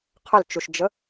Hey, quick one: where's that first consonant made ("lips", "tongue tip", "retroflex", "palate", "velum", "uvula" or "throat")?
uvula